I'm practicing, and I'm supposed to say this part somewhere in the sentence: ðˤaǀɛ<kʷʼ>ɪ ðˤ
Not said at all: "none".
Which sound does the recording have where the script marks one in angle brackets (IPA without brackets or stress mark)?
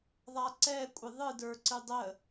kʷʼ